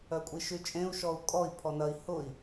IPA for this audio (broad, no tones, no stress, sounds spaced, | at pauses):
œ kʷʼ i ʃ y t͡ʃʼ ẽ u̯ ʃ ɔ u̯ kʼ ɔ i̯ pʰ ɔ n ɐ i̯ h ʊ i̯